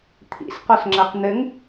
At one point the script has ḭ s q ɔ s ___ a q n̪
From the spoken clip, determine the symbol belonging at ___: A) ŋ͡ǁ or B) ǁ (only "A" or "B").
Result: A